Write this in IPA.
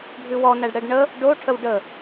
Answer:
ɖʱ ʉ w ɔ n æ ɖ ɽ ɛ ɖ ɳ ə | ɖ o ʈʰ ə w ɖ ə

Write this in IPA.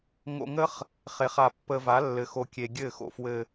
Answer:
ŋ o̰˧ ŋ ə˦ χ | χ e˨˦ χ a˧ pː ə˧ v a˨˦ lː ɘ˨ x o˨ kʲ e˨ ɡʲ ɘ˦˨ x o̰˧ f w ɘ˧

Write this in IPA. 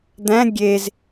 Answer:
d̪ æ̃ ɡʲ e z

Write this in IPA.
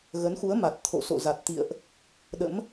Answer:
ɣ ə˨˦ n x u˨˦ ə̯ m a˨˩ t̚ t̪ʰ o̰˧˨ s o̰˧˨ z a˨˩ t̚ t̪ ḭ˧˨ ə̯ ʔ | ɗ ə̰˧˥ m

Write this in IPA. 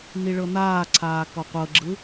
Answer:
n i ɭ ɤ n̪ aː ǀʰ aː k ɔ qʷ ɤ ɡ͡ǁ ɯ

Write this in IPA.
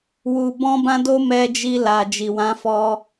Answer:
w u˨ b ɔ̃˧ b ã˧ d o˧ m ɛ˧ d͡ʒ i˧ l a˨ d͡ʒ i˨ w ã˨˦ f ɔ˧

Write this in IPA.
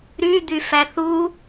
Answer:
ɾ y d̪ y f æ θ u

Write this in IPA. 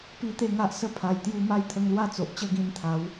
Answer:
p i˧ t̪ e˥˧ ŋ a˦ ʔ s ə˦ pʰ a˨˩ j t̪ j u˧ m a˦ j t̪ʰ ə˧ ŋ l w a˥˧ t͡s o˨ ʔ t͡ɕ ə˥˧ ɡ ĩ˧ n t̪ʰ a˨˦ w

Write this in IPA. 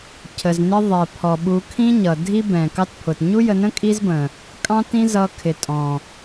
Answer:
cʰ ə˨ z n ɪ˦ ðˤ ɛ˨ pʰ ɔ˨ ɓ u˧ kʰ ĩ˦ ɲ ʌ˨ dʱ i˦ b ɛ̃˨ k ɑ˦ t pʰ ʊ˨ t ɲ u˦ j ə˧ n ə̃˦ kʼ i˦ z b ə̃˨ | kʼ ɑ̃˦ t ĩ˦ z ʌ˧ kʰ ɪ˨ tʼ ɔ̃˨

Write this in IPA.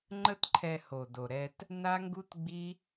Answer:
ŋ͡ǃ ə˦ t ǃʰ ɛ˧ h o˨ d o˨ ɾ ɛ˧ t | n a˦ ŋ ɡ u˦ t ɡ͡b i˦

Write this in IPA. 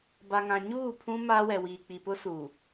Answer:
b a˨ ŋ ã˨ ɲ uː˦˨ pʰ ũ˦ m aː˦ w ɛ˨ w iː˨ k͡p i˨ p ʊ˦ s uː˨

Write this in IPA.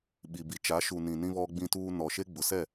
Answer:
ɓ i˨ b i˨ t͡ʃ a˨˦ ʃ u˨ n ĩ˨ n ĩ˦ β ɔ˦ ɡ͡b ĩ˦ t uː˦ n ɔ˨ ʃ e˦ ɡ͡b ʊ˨ s ɛ˦˨

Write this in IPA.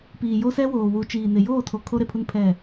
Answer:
p iː˨ j o˦ s ɛ˦ w oː˨ w u˨ t͡ʃ iː˨ n ɪ˨ j oː˦˨ tʰ o˨ kʰ o˦ ɾ e˨ pʰ u˦ n pʰ ɛ˦˨

